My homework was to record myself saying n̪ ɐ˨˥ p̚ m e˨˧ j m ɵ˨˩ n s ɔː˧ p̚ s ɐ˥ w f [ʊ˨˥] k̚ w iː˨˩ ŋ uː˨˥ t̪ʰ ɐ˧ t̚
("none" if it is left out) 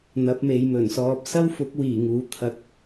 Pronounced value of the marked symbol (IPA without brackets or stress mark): ʊ˨˥